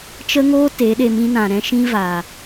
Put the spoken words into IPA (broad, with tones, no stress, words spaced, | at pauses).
t͡ʃə˦ŋoː˦ te˨˦ɗe˧mĩ˦nã˨ ɾɛ̃˦ʃĩ˦vaː˨